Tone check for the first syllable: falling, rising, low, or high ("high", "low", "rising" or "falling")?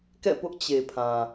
falling